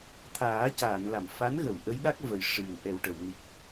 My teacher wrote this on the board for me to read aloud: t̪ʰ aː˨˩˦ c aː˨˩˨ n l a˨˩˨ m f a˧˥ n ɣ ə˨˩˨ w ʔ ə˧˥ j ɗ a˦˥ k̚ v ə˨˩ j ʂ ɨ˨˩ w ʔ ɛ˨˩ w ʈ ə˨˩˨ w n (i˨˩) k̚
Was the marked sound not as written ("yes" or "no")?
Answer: no